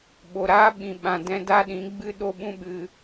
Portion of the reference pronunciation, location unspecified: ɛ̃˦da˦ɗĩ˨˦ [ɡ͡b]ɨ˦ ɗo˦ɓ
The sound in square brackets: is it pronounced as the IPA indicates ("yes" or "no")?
yes